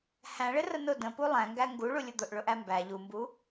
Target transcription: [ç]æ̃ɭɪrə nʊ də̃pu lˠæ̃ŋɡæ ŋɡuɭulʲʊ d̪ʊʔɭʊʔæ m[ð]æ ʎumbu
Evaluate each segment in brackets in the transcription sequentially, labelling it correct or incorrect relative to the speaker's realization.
incorrect: h, incorrect: b

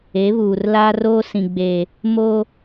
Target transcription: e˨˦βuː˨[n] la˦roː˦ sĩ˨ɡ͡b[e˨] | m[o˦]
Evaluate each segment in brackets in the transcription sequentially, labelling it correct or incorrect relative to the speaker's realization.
incorrect: r, correct, correct

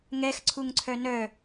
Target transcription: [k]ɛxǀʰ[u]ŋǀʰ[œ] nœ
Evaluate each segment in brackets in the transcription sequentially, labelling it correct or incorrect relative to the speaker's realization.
incorrect: ŋ, correct, correct

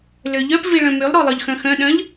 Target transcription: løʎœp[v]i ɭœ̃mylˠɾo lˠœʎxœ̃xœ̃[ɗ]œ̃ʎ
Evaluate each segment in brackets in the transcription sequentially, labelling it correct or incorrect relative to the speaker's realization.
correct, correct

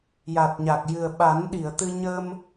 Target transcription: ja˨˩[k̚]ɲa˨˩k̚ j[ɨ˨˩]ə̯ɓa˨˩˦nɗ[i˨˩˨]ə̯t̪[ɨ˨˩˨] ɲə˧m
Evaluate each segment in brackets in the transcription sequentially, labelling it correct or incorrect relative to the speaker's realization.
incorrect: t̚, correct, correct, incorrect: ɨ˧

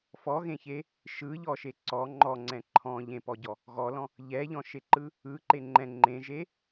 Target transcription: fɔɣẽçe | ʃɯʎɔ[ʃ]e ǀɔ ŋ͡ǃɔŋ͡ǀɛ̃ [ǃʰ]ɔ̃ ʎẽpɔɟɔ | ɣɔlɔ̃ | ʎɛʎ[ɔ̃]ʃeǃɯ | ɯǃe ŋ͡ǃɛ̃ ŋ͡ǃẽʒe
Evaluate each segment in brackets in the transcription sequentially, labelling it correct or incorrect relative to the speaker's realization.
correct, correct, correct

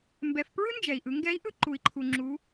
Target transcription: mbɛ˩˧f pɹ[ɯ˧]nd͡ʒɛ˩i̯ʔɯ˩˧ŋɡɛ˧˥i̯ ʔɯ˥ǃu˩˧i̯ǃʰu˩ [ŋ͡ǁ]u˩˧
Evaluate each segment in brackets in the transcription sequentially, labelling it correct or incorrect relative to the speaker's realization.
incorrect: ɯ˥, correct

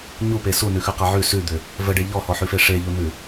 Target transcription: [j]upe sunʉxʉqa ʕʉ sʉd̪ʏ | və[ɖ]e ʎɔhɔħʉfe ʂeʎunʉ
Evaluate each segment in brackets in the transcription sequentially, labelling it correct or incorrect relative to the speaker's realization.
incorrect: ɲ, correct

